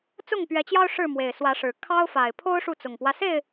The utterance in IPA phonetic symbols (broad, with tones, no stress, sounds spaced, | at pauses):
t͡s ʊ˥˨ ŋ p ɥ ɛ˨˦ t͡ɕ j ɑ˦ ʊ̯ ʂ ɻ̩˥˨ m w e˨˩ ɪ̯ s w ä˨˦ ʂ ɻ̩˨˩ kʰ ɑ˦ ʊ̯ f a˨˩ ɪ̯ pʰ o˦ ʊ̯ ʂ u˥˨ t͡s ʊ˨˩ ŋ p w ä˦ s e˥˨ ɪ̯